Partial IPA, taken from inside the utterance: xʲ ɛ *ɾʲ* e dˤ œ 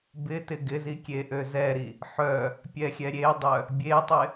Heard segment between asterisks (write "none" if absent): ɾʲ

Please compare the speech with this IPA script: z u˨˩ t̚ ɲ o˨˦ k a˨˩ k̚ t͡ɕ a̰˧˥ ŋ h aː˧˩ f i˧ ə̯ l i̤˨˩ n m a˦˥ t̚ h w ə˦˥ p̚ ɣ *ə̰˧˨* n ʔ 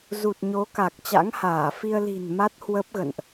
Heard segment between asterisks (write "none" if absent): ə̰˧˨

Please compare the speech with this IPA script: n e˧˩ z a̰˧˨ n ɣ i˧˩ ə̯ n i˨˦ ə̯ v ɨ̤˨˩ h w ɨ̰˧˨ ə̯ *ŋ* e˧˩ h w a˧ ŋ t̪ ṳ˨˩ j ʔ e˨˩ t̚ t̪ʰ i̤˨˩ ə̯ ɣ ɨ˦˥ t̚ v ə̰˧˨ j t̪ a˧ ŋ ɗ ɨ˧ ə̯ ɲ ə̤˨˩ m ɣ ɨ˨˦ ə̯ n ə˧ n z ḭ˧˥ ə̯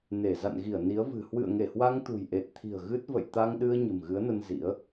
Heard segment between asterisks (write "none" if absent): ŋ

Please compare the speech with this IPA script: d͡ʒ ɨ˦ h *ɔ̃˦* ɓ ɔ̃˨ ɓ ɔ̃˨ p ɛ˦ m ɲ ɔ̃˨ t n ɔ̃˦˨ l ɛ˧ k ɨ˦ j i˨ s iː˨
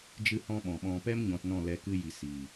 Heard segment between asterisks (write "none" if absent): ɔ̃˦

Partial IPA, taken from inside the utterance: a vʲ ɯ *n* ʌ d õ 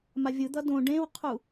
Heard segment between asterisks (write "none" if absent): d̪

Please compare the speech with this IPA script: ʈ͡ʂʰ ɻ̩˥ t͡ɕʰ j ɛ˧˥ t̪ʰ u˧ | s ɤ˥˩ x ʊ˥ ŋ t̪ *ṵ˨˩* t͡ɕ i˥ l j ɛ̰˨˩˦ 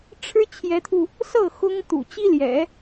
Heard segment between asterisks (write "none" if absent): ṵ˨˩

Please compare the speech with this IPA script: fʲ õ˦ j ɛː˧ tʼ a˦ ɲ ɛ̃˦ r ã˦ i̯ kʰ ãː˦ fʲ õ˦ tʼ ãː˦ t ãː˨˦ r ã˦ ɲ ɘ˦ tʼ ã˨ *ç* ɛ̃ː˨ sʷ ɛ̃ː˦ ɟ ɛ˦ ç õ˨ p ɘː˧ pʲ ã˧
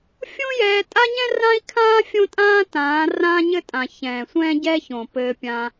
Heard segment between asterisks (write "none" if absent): ç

